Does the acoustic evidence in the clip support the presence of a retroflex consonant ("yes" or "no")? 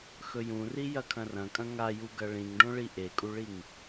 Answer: yes